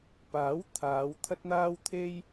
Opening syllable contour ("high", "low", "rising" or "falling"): rising